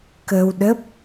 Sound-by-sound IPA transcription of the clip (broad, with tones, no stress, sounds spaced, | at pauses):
k ə˧ w ɗ ə˦˥ p̚